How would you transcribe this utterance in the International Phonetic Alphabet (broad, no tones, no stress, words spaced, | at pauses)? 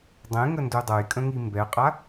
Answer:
dˤẽŋəndu dˤɤjkʼə̃ŋi mbɛqʼa